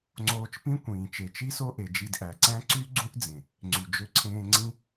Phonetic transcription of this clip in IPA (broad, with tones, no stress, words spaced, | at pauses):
ŋ͡ǀoː˧t͡ʃpĩ˦ kʷĩː˨ t͡ʃe˨t͡ʃi˦so˦ʔe˨ d͡ʒi˧dʔæ˨ǀæ̃˦ ǀy˦ ɡ͡ǀũ˦ʔd͡zẽ˨ | ŋ͡ǀy˨ d͡ʒø˧ǀʰẽː˧ ŋ͡ǀĩ˦